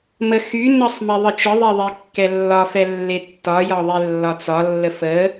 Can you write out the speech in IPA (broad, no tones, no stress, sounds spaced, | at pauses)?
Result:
m ə x y n ə sˤ m ɛ ðˤ ə t͡ʃ ə ðˤ e ðˤ e kː ɛ lː ɒ f ɛ lː e tː ɒ j ɒ ðˤ e lː ɒ t͡s ɒ lː ə f ə